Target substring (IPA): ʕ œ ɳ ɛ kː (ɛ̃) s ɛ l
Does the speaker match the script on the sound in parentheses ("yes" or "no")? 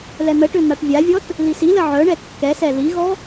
no